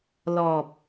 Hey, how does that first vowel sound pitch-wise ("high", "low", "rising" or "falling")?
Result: low